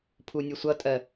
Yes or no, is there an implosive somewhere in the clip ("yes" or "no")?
no